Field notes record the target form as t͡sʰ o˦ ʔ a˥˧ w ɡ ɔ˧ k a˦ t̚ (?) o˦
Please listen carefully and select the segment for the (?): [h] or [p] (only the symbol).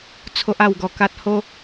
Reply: h